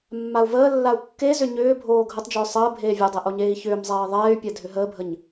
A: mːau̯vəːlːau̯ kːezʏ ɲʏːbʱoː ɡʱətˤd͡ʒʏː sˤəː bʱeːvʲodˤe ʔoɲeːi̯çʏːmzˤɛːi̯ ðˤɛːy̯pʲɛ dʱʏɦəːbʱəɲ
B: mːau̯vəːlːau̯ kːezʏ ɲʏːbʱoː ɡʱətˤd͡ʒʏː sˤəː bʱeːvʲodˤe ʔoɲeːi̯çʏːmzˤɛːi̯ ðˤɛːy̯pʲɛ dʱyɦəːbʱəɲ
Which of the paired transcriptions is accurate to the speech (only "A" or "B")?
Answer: A